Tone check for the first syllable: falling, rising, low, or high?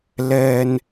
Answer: low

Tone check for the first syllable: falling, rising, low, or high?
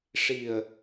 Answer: low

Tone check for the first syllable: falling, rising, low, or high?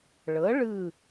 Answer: rising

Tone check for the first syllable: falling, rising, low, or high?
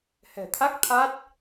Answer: low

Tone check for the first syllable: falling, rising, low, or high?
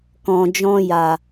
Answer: low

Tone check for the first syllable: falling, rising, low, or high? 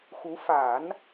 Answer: rising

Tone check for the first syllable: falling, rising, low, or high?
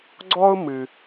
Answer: high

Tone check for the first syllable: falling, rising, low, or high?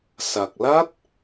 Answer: low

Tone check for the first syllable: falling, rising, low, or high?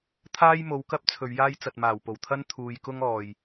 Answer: high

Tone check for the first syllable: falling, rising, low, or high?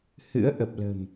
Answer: rising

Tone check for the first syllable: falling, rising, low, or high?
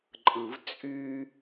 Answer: low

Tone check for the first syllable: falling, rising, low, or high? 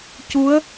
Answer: rising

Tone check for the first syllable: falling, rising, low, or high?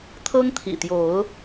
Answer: high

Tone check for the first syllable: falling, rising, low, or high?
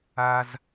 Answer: high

